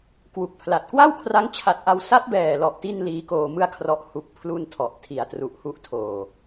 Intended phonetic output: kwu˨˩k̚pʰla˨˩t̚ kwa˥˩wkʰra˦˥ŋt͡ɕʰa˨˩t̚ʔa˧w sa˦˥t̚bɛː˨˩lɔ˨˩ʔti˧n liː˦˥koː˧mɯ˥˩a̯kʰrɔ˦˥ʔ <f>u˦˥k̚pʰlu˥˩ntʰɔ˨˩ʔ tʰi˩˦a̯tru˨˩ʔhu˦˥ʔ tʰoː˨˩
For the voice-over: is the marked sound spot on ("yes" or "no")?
no